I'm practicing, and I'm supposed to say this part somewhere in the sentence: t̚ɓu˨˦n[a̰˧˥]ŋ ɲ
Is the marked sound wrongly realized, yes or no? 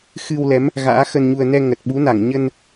yes